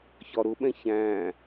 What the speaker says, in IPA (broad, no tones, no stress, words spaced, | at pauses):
çɒɾʊɓɛ̃ çæ̃